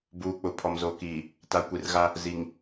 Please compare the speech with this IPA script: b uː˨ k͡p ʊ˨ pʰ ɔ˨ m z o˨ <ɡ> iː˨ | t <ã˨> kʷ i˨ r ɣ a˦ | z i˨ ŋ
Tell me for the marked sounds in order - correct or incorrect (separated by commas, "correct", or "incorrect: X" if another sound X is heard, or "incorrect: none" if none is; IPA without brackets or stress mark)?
incorrect: k, incorrect: a˨